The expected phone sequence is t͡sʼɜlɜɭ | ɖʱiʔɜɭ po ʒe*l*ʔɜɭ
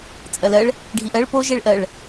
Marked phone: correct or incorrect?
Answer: incorrect: ɭ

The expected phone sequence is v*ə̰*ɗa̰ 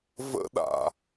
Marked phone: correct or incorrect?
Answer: correct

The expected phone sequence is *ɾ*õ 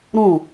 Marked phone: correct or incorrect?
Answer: correct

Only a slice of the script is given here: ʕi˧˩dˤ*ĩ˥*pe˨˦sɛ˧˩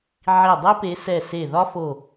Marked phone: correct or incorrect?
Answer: incorrect: i˥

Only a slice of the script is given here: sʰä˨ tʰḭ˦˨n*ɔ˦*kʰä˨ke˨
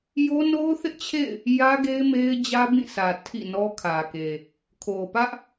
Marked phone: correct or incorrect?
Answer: correct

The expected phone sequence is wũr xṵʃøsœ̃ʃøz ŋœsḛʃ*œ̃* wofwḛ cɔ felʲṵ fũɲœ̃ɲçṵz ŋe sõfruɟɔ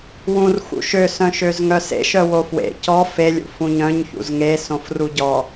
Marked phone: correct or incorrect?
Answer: incorrect: œ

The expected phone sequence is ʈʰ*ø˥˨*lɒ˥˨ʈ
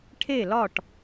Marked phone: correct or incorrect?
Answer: incorrect: e˥˨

